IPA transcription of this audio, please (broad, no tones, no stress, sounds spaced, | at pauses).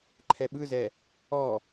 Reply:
ǃʰ ɛ ɓ ɯ z ɛ | ɔ